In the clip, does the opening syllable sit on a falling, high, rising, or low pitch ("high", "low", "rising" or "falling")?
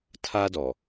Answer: high